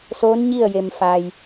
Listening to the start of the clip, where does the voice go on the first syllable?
rising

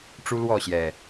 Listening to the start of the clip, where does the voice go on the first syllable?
high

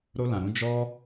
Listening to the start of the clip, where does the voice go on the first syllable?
high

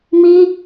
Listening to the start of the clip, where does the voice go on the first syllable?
high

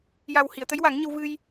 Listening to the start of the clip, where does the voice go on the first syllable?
low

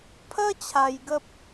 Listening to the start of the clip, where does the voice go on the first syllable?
high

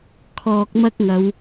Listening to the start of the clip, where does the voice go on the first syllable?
low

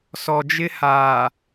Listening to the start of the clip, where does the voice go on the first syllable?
low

